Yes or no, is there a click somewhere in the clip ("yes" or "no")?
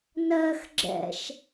yes